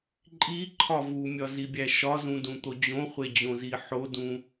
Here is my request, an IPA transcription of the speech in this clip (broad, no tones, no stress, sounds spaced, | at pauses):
ǃʼ i ǃʰ ɒ v u mʲ ɒ z i bʲ æ ʃ ɒ z ũ d ũ t̪ o d͡ʑ õ χʷ e d͡ʑ õ z i ħ o d ũ